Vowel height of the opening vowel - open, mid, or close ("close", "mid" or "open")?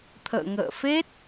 mid